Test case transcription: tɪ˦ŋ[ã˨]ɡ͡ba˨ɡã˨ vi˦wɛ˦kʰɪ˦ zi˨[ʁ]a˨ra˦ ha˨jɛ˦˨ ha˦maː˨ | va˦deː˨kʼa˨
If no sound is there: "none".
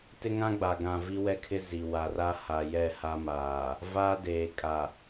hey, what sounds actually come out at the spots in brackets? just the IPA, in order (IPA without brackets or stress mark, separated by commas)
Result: ã˦, w